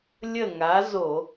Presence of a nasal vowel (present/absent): absent